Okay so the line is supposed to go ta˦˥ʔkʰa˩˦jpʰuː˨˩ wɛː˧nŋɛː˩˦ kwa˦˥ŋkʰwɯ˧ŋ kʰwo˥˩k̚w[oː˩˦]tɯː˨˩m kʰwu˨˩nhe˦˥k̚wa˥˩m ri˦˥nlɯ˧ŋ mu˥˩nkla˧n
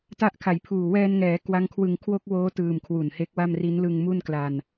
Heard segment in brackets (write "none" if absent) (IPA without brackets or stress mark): oː˦˥